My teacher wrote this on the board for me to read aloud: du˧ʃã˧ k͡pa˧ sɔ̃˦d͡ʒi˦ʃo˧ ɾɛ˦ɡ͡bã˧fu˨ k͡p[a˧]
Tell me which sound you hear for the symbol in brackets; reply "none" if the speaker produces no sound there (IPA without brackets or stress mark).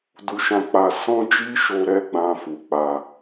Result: a˧